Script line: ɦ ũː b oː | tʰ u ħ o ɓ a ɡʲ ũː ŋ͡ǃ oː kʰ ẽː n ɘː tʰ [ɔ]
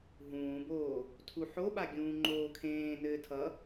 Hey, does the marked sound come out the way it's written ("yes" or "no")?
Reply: no